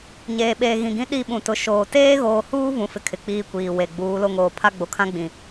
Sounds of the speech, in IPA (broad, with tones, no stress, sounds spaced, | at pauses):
ɲ eː˨ ɓ eː˨ ɣ ĩ˨ ɡ ĩ˦ ɗ i˦˨ ɓ ũ˨ t ʊ˨˦ ʃ oː˨ t eː˦ ɣ oː˨ h uː˦ v ũ˦ f ɪ˦ kʰ ɪ˨ k͡p iː˦ kʷ iː˨ w e˨ ɡ͡b uː˨˦ l o˦ ŋ oː˨ pʰ a˦ ɡ͡b o˨ kʰ ã˦ ɡ͡b ĩ˨